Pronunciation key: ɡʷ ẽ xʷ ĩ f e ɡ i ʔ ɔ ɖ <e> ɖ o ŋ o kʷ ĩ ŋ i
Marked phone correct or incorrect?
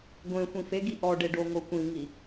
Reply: correct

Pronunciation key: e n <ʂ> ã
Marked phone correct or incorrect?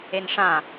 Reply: correct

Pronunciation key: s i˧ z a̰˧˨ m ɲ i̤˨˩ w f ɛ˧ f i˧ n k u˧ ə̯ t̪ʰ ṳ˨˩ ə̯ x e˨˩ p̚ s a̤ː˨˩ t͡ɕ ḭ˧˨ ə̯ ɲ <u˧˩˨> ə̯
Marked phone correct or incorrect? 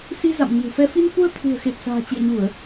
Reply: correct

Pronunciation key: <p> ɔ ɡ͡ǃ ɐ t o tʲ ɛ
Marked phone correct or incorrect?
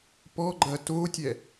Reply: correct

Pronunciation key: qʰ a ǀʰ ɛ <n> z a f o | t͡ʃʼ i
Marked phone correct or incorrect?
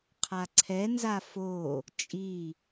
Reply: correct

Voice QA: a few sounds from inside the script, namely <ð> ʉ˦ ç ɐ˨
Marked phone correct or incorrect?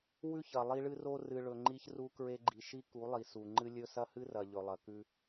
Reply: incorrect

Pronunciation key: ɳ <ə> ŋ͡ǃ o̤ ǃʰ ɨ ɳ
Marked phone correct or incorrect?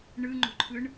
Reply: incorrect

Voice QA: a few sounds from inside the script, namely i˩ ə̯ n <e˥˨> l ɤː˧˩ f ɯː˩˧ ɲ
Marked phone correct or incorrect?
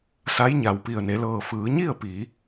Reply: incorrect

